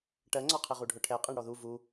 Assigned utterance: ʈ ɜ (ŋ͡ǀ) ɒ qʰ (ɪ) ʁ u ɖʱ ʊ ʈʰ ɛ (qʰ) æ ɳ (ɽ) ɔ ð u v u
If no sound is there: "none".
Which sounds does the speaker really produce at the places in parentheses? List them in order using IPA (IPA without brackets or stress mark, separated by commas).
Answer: ŋ͡ǀ, ɪ, qʼ, ɽ